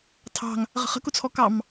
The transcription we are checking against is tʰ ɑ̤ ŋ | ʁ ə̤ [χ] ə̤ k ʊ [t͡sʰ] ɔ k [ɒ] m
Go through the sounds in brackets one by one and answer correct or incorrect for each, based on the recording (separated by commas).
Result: correct, correct, incorrect